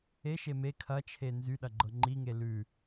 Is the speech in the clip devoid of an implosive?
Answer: no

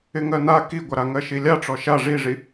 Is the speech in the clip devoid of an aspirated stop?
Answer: yes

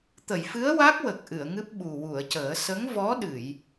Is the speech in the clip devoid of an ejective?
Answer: yes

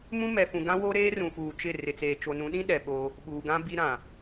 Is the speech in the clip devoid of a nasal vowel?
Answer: no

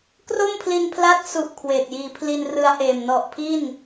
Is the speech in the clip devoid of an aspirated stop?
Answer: no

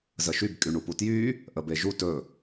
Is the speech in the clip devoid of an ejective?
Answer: no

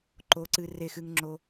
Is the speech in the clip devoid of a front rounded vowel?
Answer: yes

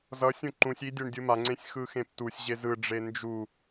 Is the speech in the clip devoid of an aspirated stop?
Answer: yes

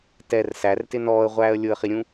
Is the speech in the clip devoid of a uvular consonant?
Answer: no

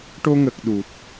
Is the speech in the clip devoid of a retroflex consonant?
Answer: no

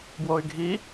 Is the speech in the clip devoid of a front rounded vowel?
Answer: no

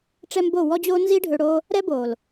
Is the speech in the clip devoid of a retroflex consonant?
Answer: no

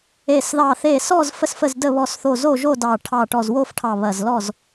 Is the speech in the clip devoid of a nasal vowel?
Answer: yes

